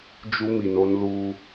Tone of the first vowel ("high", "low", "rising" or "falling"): high